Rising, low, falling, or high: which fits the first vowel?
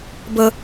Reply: high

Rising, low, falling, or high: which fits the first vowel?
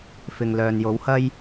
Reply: low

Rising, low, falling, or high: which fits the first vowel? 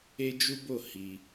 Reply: high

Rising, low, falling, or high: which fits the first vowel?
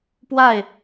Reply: falling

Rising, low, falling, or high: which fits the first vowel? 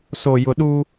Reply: low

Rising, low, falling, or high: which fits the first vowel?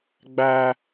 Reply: high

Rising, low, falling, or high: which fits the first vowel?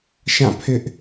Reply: falling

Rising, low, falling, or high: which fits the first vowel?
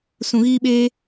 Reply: low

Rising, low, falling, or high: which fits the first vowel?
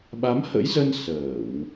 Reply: rising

